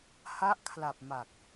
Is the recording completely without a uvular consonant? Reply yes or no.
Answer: yes